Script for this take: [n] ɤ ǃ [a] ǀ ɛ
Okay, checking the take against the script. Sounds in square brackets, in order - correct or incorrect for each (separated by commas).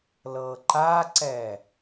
incorrect, correct